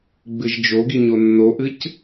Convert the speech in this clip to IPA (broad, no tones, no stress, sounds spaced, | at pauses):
ɡ͡b ɨ ʒ d͡ʒ o ɡ i ɲ o nː o ʔ ɨ c